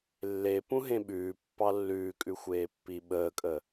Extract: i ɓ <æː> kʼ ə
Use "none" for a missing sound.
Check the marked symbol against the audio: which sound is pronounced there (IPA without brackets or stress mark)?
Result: əː